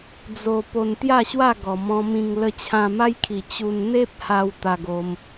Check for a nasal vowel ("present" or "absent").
present